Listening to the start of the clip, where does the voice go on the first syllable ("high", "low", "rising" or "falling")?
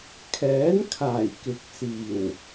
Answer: rising